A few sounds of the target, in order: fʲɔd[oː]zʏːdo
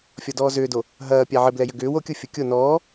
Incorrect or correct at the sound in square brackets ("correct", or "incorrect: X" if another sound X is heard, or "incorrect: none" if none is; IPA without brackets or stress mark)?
incorrect: ɔː